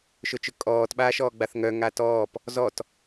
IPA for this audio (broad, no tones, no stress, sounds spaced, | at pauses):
ʃ ʊ t͡ʃ ʊ kʼ ɔː t ɓ aː ʃ ɔː ɡ͡b a θ ŋ œ ŋ a t ɔː p | z ɔ t